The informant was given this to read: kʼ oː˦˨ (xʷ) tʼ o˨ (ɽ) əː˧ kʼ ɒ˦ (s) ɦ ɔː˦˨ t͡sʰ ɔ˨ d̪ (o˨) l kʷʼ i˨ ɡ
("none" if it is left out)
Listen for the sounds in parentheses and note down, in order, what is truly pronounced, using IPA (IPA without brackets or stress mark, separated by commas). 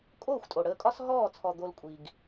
xʷ, ɽ, s, o˧